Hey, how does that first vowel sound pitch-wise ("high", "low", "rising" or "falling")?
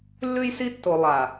high